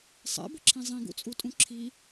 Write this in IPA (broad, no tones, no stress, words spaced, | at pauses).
sˤɛ̰bəǁʰĩ zˤĩɡṵt͡sʼutʼũ ǁʰi